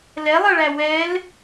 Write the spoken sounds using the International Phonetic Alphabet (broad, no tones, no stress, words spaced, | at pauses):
lɛlˠʌɭæ wɛl